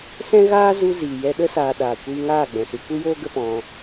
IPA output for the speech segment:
s ɛ̃˦ ɣ aː˦ z u˧ z iː˨ j ɛ˧ ɗ ə˧ s aː˨ ɗ aː˨ kʷ iː˧ ŋ aː˦˨ ɡ͡b ɛ̃˨ s ɨ˧ kʷ ɨ˦ j oː˦ ɡ ə˦ p ɔ̃˧

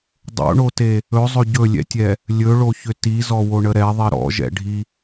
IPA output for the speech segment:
dˤ o̰ ɳ o t e | ɵ zˤ ɵ ɟ ɵ lʲ ɛ̰ tʲ ɛ | lʲ ɵ ɭ o ç ʏ t i z ɔ w o ɳ ə ɾ ɛ ðˤ i ɾ ɔ̰ ʒ ɛ̰ ɖʱ i

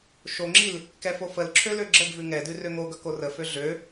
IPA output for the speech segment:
ʃ o ŋ͡ǁ i l | k ɛ f o f ə l ǁʰ ø l ø ɡ͡ǁ ə ɡ v ʉ ŋ ɛ d ʉ r ø ŋ o ɡ ʌ k o r ə f ø ɮ ø

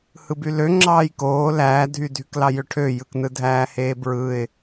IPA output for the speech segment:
h ɯ b y l ø ŋ͡ǁ ɑː j k oː l æː dʱ y dʱ y k l ɑ j ø ʈʰ ø j ɯ k n ɯ dʱ æː h eː b ɹ ɯ ɪ̯

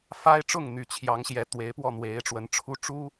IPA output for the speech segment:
f a˥ ɪ̯ ʈ͡ʂ ʊ˥˩ ŋ n̪ y˨˩ t͡ɕʰ j ɑ˧˥ ŋ ɕ j ɛ˧˥ t̪ w e˧˥ ɪ̯ p w ɔ˥˩ n̪ w e˧˥ ɪ̯ ʈ͡ʂ w ə˧˥ n ʈ͡ʂʰ u˥ ʈ͡ʂ u˥

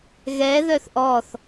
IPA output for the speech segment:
ɣ ɛ ð œ θ ʔ ɔ θ

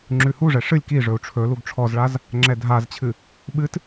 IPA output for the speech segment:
ŋ͡ǁ ʉ h u ʐ ɛ ʂ ɨ lʲ k i ʐ ɵ u̯ ʈ͡ʂʰ ɵ l u ɡ ʈ͡ʂʰ ɔ z ɭ a z | ŋ͡ǁ ɛ dʱ a z t͡ɕʰ ɨ | ɓ ɨ t

